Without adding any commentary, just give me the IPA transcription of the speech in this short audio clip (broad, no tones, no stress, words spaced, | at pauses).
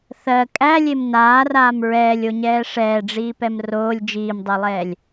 θɜ kʼælʲem naːraːm ɹɛːlʲoɲɛː ʂɛːɖ͡ʐiːpɛm roːlʲ d͡ʒiːmdˤelˠɛːlʲ